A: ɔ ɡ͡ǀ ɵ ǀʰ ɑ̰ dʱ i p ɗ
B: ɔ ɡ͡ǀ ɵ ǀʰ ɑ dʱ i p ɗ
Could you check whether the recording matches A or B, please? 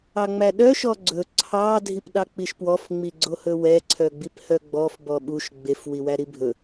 B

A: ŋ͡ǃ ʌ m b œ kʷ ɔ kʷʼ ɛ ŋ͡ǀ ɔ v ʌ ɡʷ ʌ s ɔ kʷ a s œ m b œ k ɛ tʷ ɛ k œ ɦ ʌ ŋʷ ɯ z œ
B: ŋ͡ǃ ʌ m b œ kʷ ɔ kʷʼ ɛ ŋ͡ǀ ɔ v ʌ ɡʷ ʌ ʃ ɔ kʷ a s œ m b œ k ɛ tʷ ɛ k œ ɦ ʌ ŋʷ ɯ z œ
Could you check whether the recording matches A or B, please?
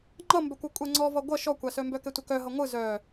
B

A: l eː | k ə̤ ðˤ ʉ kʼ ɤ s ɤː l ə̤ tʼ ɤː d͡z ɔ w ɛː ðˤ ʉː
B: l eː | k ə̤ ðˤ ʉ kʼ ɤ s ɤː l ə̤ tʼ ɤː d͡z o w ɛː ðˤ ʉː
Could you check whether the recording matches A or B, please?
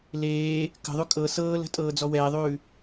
A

